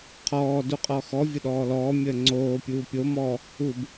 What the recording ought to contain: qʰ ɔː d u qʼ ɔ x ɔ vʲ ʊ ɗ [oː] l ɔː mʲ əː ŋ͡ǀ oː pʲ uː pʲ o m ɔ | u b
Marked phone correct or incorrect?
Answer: incorrect